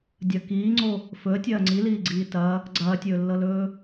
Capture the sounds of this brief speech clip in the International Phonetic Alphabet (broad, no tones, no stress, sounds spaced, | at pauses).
dʲ ɐ k iː ŋ͡ǀ o | f ɵ ə̯ tʲ ɐː ŋ͡ǀ i l iː ɡ͡ǀ iː t ɐ | ɡ͡ǀ ɐː tʲ ɵː lː ɤ l ɵː